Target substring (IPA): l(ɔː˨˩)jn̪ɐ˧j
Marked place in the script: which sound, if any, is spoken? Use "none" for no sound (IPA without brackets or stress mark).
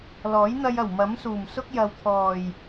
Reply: ɔː˨˥